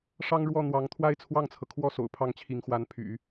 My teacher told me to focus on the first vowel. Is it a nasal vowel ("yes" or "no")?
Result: no